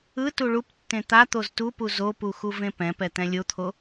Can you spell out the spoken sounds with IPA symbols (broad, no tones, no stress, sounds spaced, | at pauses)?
ɯ t u ɭ u p tː ẽ t̪ a t̪ o z t u p u z o p u x u v ẽ p ɛ̃ p ɛ t̪ ɛ̃ lʲ o t̪ʰ o